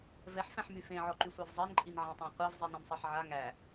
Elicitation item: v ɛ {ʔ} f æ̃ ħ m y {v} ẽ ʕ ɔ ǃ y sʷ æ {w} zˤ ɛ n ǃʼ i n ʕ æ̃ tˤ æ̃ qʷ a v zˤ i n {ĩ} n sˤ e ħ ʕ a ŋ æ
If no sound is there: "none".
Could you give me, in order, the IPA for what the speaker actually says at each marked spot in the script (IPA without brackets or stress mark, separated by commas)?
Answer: ħ, f, v, ẽ